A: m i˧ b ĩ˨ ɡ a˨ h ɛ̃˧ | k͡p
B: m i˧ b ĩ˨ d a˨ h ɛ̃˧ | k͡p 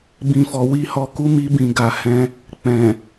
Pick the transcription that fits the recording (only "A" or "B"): A